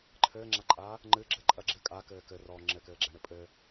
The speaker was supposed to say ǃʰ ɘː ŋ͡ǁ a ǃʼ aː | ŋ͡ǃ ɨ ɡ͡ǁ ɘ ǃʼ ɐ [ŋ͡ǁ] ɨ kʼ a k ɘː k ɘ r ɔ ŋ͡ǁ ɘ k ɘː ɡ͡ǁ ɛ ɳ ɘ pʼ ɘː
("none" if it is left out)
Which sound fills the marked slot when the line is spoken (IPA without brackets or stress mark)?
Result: ɡ͡ǁ